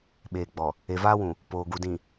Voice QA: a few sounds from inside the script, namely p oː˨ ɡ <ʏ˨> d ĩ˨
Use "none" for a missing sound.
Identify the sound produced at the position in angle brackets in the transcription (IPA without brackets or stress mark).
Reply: u˨